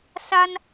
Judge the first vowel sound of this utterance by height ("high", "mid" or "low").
low